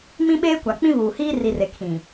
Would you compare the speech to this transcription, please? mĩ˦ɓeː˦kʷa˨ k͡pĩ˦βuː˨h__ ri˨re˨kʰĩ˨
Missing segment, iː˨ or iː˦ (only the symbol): iː˦